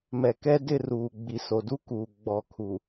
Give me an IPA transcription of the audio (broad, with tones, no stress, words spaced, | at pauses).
mɛ˨kɛ˦dɪ˦˨ruː˨ ɡ͡bi˨so˨du˦kuː˨ ɡ͡bɔ˨kʰu˨